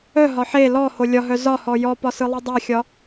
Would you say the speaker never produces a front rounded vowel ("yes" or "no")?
no